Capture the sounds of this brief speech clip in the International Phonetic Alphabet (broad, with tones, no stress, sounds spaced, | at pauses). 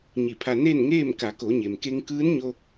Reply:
ɲ i˧˩ pʰ a˧ n e˥˨ n ŋ eː˥˨ m k a˩˧ k o˩˧ ɲ e˩ m k e˧ ŋ k ɯː˧˥ n ɲ o˧